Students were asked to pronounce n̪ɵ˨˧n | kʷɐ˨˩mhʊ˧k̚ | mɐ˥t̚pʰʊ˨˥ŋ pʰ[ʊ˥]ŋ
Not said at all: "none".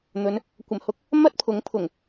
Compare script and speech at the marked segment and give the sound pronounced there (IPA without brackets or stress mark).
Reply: ʊ˨˩